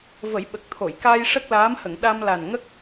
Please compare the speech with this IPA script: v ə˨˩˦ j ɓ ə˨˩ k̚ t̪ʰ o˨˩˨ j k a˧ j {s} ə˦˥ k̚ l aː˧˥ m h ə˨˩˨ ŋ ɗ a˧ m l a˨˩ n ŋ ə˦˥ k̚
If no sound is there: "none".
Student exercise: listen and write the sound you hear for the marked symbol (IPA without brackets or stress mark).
ʂ